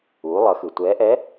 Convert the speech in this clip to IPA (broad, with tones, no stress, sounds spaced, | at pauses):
uː˩˧ lˠ ʌ˩˧ x ɯ˩ tʷ ɛː˧˥ ʔ ɛ˧˥